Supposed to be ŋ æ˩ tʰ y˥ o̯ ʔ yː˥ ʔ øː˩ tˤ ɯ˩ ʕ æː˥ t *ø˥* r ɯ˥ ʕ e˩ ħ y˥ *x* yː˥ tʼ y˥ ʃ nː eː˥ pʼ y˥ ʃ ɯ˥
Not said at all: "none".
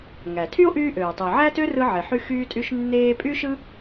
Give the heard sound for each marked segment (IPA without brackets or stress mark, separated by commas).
ø˥, x